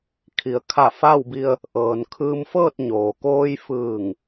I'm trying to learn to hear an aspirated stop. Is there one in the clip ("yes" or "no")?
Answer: yes